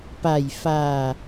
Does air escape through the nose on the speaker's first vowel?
no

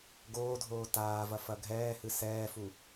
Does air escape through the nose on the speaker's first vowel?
no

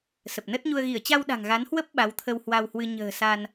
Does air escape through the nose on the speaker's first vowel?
no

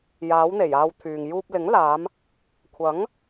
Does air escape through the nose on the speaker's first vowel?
no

